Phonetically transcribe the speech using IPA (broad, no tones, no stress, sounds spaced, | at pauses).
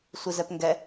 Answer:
sʷ i z ɛ p ŋ ɡ ɛ